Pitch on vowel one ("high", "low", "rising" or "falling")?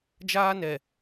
high